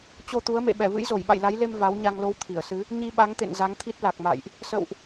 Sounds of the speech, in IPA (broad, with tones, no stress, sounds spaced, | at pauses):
t͡ɕ o˧ t̪ u˨˦ ə̯ m ḛ˧˨ ɓ ɛ˧˩ v ɨ̰˧˥ j z o˧˩ j ɓ a̰˧˨ j l a˨˦ j l e˧ m v a˨˦ w ɲ a˧ ŋ l o˧ w t̪ʰ i˧˩ ə̯ s ɨ˨˦ | ɲ i˧ ɓ a˨˦ ŋ t̪ ḛ˧˨ n z a˨˦ ŋ t̪ʰ i˦˥ t̚ l a˨˩ k̚ m a̰˧˨ j ʔ | s ə̰˧˨ w ʔ